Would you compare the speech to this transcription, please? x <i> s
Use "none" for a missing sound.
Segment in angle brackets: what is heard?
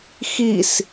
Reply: i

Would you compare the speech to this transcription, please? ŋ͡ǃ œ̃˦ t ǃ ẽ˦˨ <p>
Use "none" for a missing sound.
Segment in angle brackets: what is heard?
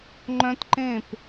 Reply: p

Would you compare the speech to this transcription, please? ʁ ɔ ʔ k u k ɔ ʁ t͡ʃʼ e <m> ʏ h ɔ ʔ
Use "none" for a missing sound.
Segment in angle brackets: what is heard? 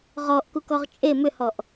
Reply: m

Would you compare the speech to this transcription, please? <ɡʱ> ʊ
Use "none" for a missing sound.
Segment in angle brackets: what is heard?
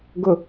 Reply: ɡ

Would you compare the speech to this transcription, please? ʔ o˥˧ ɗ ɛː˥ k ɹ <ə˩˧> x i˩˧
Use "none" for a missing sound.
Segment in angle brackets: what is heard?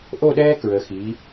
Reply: ə˩˧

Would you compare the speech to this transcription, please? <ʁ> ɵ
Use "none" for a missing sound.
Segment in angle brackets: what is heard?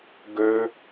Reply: ɡ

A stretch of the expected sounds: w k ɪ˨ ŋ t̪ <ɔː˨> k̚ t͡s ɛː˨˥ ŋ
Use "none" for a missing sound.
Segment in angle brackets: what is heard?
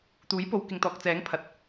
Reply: ɔː˨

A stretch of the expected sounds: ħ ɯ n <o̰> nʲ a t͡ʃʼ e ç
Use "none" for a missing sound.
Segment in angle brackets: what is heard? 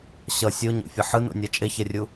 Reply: o̰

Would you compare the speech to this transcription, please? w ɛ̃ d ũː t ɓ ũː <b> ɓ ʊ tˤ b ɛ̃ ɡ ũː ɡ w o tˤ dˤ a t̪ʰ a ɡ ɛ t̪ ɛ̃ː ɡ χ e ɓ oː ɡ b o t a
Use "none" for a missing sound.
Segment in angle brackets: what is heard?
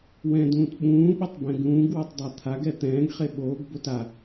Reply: none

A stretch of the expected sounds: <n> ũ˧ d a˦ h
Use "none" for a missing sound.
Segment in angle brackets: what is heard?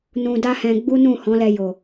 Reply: n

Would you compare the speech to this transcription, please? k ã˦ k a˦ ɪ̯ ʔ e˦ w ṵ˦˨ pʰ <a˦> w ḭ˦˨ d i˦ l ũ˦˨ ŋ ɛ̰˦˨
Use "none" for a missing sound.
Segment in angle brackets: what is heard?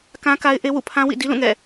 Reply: ã˦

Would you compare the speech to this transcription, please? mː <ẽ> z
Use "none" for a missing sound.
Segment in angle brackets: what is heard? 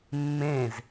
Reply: ẽ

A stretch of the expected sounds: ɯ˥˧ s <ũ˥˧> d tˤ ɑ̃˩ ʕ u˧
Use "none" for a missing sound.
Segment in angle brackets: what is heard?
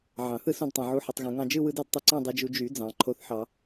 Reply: ũ˧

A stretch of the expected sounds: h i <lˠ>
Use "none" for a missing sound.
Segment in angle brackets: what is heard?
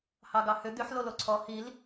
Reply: l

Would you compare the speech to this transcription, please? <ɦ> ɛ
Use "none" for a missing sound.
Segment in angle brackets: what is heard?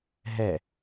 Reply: ɦ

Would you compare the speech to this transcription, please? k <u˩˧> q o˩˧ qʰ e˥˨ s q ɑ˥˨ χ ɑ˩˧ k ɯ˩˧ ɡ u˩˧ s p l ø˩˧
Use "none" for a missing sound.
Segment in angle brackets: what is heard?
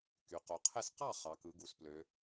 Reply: y˩˧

